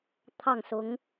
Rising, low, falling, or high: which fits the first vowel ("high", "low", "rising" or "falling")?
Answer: falling